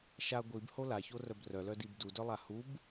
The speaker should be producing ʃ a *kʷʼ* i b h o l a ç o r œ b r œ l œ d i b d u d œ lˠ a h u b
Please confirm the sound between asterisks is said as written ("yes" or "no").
no